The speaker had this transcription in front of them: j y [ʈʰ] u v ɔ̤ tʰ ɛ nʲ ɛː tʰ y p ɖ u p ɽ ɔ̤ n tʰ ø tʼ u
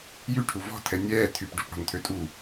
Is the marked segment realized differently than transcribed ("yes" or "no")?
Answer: no